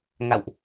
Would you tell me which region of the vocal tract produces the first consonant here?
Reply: velum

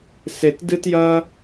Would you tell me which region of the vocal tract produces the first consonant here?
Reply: tongue tip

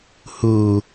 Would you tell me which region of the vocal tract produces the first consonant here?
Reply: throat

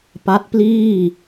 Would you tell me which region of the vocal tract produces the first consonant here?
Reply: lips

